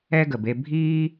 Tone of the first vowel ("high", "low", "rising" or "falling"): high